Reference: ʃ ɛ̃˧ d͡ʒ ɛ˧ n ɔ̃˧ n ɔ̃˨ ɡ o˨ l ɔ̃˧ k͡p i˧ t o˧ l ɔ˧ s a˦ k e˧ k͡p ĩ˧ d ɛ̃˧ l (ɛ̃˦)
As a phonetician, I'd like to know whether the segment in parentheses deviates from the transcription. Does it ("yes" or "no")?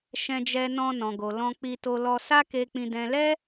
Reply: yes